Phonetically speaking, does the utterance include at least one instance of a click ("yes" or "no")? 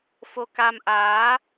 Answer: no